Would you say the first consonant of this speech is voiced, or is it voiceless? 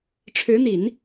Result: voiceless